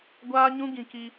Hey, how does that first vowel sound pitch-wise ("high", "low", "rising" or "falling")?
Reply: high